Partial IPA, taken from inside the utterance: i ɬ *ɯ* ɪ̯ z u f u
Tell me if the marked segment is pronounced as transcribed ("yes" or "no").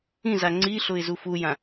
no